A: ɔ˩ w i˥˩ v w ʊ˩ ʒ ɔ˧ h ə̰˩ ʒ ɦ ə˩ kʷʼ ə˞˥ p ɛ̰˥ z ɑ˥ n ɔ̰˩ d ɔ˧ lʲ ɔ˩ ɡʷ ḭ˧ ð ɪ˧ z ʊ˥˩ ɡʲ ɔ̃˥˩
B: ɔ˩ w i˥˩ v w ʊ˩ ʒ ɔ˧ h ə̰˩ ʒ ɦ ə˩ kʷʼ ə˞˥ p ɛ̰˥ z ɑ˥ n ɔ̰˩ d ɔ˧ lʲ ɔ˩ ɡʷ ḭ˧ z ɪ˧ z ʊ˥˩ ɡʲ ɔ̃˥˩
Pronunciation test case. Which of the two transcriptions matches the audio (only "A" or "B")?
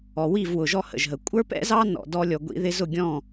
A